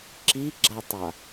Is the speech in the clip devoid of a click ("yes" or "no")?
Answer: no